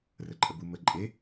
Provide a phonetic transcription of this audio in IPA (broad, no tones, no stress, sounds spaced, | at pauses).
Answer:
r ə ǃʼ ə b u m ə ǃʼ e